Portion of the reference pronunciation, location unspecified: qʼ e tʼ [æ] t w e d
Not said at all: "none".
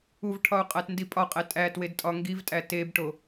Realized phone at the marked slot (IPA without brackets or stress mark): æ